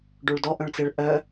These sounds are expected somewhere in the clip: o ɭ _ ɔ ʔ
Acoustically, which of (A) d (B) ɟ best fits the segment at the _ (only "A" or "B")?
A